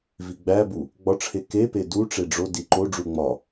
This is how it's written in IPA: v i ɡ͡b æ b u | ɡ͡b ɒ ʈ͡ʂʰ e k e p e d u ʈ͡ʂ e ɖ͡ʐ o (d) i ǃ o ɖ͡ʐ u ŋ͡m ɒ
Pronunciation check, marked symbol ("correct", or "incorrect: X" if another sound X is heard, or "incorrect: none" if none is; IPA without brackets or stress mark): correct